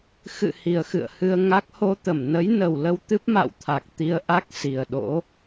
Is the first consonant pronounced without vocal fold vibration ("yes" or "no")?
yes